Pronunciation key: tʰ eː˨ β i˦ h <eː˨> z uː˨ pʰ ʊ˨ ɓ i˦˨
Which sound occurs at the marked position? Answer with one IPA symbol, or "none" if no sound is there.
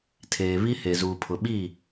e˨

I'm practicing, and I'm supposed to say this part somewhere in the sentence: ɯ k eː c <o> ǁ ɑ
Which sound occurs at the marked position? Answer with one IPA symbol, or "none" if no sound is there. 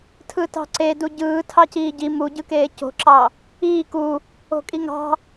o̤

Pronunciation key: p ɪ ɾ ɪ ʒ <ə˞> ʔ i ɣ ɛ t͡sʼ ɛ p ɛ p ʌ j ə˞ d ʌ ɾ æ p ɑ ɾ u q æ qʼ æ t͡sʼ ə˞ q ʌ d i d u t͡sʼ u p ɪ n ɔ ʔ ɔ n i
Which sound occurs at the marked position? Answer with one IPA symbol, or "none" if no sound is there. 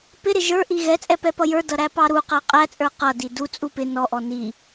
ə˞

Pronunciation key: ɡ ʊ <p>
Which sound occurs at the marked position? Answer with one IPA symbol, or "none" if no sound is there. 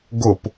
p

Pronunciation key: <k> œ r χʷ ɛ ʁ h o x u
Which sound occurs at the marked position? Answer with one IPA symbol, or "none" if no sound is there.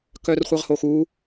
k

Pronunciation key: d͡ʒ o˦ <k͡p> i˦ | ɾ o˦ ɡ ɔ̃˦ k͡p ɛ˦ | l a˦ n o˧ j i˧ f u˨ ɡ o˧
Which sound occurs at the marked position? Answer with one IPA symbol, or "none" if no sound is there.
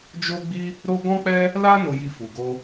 ɡ͡b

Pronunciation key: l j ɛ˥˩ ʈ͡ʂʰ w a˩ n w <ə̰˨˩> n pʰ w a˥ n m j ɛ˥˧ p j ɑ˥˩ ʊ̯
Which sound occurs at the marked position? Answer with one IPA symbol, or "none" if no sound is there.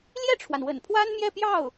ə̰˨˩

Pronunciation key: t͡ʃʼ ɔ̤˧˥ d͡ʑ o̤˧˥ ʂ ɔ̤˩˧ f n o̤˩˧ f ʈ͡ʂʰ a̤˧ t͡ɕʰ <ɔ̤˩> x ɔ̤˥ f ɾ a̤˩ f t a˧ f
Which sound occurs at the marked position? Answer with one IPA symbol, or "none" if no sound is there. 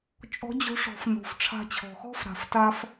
ɔ̤˩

